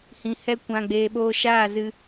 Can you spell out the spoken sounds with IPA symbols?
h ĩ˨ h ɛ˧ kʷ ã˧ ɡ͡b eː˧ ɓ oː˧ ʃ aː˦˨ z ɨ˧

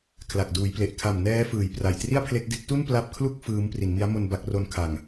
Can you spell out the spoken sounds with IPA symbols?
kʰ l a˨˩ k̚ d uː˩˦ j p l e˨˩ ʔ kʰ a˨˩ m n ɛː˦˥ f ɯː˨˩ j p r a˨˩ j t r i˥˩ a̯ pʰ l e˦˥ k̚ d e˦˥ k̚ t u˥˩ n p l a˦˥ p̚ kʰ l u˥˩ k̚ f ɯː˦˥ m p r i˩˦ n m i˦˥ a̯ m o˧ n b a˦˥ k̚ r o˦˥ n kʰ a˨˩ ŋ

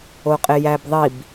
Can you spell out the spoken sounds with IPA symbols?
o qʼ e j æ b ðˤ i b

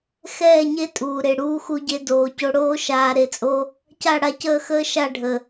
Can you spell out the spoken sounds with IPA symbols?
x ɛː˦˨ ɲ e˦ tʼ uː˨ ɾ e˨ ɽ uː˧ x u˧ ɟ e˧ d oː˨ c o˧ ɽ oː˦ ʃ aː˧ ɾ e˧ t͡sʼ o˦ | c a˦˨ ɽ a˧ c əː˦˨ x əː˦ ʃ a˦˨ ɖʱ ə˨

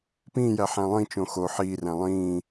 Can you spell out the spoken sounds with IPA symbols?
p ĩː j æ ħ æ̃ lˠ ĩ t͡ʃ õ x o ħ iː r æ̃ lˠ ĩː

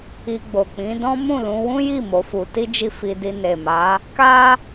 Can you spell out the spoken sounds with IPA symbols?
i˧ ɡ͡b o˨ k͡p ĩ˨˦ d ɔ̃˦ m ũ˦˨ l ũ˧ w ũ˦ j i˦˨ m o˨˦ f u˧ t i˦ d͡ʒ i˦˨ f i˧ d i˧ n e˨ m a˨˦ | k a˦

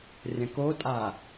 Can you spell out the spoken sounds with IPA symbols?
rʲ ɐ̃ k o tʼ a

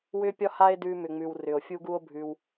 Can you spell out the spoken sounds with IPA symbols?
w ʏ˦ pʲ ɒ˦ h a˦ e̯ d ʉ˧ m ʏ˨ ŋ͡m ʉ˨ w r ʏ˨ o̯ fʲ u˦ ɡ u˦ o̯ bʱ ʉ˧ w

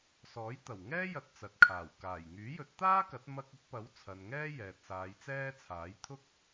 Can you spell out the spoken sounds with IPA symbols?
s ɔː˨˥ j t̪ ɐ˨˩ w ŋ ɛː˥ j ɐ˧ t̚ t͡s ɐ˨ t̚ kʰ aː˨˩ w k aː˨˩ j ŋ yː˨˥ j ɵ˨˥ t̚ t̪ aː˥ k ɐ˨˥ t̚ m ɐ˧ k̚ ʊ˨˥ k̚ p ɐ˨˥ w t͡sʰ ɐ˨ n ŋ ɛː˥ j ɛː˨ t̚ s aː˨˧ j t͡s ɛː˥ t͡sʰ aː˨˥ j t̪ʰ ʊ˥ k̚

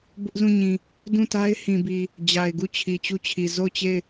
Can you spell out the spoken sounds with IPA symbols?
b ʊ˦ ʔ z ũ˦˨ ɲ ĩ˨ | d ũ˦˨ t a˦ ɪ̯ h ĩ˨ b i˨ | d͡ʑ a˨ ɪ̯ ɡ u˦˨ t͡ɕʰ i˨ t͡ɕ u˦ t͡ɕʰ i˨ z o˦˨ ʊ̯ t͡ɕ e˦˨ ɪ̯

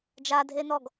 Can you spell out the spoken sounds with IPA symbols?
d͡ʒ a dʱ e n ɔ ɡ

